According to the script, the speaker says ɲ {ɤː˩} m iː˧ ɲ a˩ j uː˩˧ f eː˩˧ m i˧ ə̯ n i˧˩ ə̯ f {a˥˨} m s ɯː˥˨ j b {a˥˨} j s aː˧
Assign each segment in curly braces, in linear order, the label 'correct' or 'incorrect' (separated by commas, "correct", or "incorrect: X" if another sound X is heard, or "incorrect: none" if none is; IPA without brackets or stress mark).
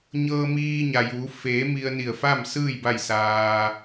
incorrect: ɤː˧, correct, correct